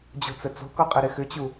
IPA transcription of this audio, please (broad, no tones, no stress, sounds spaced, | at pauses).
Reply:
d͡ʑ o̤ t͡s ə t͡s o̤ k ɔ qʼ ə ɾ ɪ x ʏ t͡ɕ u